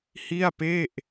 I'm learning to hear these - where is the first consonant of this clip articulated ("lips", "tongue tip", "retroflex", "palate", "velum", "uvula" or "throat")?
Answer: throat